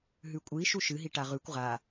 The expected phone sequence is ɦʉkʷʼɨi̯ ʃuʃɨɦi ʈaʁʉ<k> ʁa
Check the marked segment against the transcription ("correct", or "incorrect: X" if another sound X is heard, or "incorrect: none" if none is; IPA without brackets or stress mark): incorrect: kʷ